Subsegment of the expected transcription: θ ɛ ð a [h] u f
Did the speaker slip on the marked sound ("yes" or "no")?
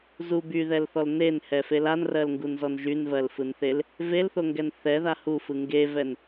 no